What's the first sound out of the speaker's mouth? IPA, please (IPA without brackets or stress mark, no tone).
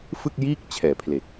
f